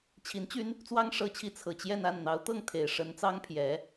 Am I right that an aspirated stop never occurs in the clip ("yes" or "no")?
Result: no